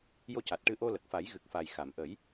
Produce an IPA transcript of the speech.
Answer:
jo˧ca˨˩t̚ʈɨ˧ʔo˧ lə˨˩k̚fa˨˩˦j ɣɨ˨˩k̚fa˨˩jxa˨˩˨m ʔə˨˩˦j

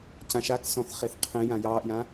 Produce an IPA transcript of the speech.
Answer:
cãʃaksɔ̃θχeθ qʰẽ jãjɑːʔjã

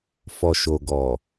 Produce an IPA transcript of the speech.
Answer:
fɔ˨ʃo˨ɡɔ˨

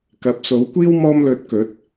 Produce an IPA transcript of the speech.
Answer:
kɐ˨˥p̚so˨˥wkʷiː˥w mɔː˧mlɵ˨˥t̚ kɵ˨˥t̚

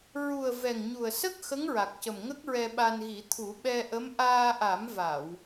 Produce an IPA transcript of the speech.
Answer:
ɹu˨˩ə̯ vɛ˨˩ŋɲu˨˩ə̯sə˦˥k̚ xə˧˥ŋɹa˨˩k̚cə˨˩m ŋə˦˥k̚ɹɛ˧ɓa˧nɣi˨˩˦ t̪ʰu˨˩˦ ɓɛ˧ʔə˧˥m ʔaː˧ʔa˨˩˦mva˨˩˨w

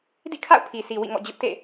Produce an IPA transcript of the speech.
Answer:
dḭ˦˨kʰa̰˦˨ʊ̯pʰi˨si˨ wḭ˦˨ŋɔ̰˦˨ d͡ʑʊ˦ʔtḛ˦˨

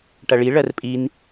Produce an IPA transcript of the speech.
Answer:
ʈɐɭi ɭɜrpʼin

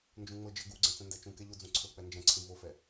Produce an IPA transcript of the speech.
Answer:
nd͡ʒũŋ͡mɤd͡ʒɤ ɡuɡ͡ǀɛ̃ t͡sɛ̃ndɛt͡ʃũkɛ ʎod͡zũǀʰɤk͡pɛ nd͡ʒɛ̃ǀʰĩ vofɛ

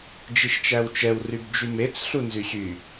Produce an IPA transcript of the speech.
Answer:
d͡ʒiʃt͡ʃæwt͡ʃɛw rybd͡ʒymet͡s ɬunzyɕy

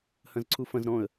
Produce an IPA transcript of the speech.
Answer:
hɐ̃zǀʰufɐ̃z ɾɔ̃ə̯

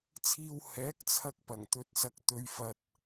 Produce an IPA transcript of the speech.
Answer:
t͡sʰiː˧w hɛː˨˥k̚ t͡sʰɐ˧k̚pɐ˨˩ŋt̪ɵ˨t̚sɐ˨k̚ t̪ɵ˨ɥfɐ˨t̚

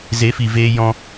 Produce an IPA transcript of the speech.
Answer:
ze˨˦fi˨veː˧ jɔ̃˧

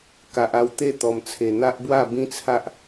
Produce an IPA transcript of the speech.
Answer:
ka˨ʔa˧w t̪e˥˧t̪ɔ˨˩mt͡sʰe˨˩ n̪a˦ʔbwa˥˧ bĩ˦t͡sʰa˦ʔ

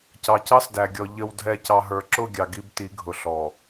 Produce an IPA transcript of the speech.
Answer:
cɑ˨cɑ˦sdæ˨ɡʲɔ˨ ʎə˨wdʱɛ˨ cɑ˨ɦə˞˨ǁʊ˦˨ ɡʲɑ˨ɡi˦bti˨˦ ɡʱʊ˨ɬɔ˨

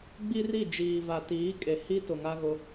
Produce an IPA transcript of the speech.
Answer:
ɡ͡bi˦ri˦˨ d͡ʒiː˨va˨tiː˨˦ kʼe˨ hi˦tʊ˨ ŋa˦ɣʊ˦

